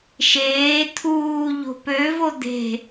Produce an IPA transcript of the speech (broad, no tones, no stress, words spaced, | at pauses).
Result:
ʃeː t̪ʰuː ʎo̤pøvo d̪e̤